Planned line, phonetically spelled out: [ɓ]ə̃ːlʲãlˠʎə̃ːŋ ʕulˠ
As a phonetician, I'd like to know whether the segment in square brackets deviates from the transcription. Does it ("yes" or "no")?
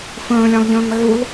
yes